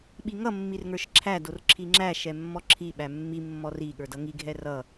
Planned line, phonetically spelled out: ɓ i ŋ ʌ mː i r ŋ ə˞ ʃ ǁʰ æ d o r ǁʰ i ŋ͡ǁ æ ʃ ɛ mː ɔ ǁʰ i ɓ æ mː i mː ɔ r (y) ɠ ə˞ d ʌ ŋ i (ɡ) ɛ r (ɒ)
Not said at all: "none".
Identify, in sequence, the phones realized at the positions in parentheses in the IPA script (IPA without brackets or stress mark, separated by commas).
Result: i, ɡʱ, ʌ